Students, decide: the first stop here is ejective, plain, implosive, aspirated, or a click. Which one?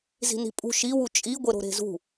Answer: ejective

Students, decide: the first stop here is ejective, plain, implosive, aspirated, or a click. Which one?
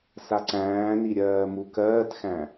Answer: click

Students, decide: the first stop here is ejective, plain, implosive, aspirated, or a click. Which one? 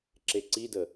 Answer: click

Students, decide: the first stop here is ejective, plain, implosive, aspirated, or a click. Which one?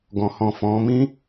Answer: plain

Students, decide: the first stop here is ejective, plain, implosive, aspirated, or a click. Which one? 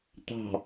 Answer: plain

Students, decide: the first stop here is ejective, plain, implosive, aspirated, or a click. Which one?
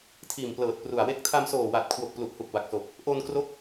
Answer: aspirated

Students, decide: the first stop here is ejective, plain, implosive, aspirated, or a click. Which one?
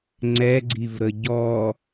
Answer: click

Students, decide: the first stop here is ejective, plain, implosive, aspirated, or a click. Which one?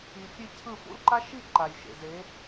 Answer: aspirated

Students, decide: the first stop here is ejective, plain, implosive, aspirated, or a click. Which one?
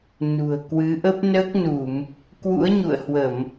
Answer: plain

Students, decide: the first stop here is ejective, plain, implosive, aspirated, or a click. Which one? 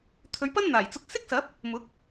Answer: aspirated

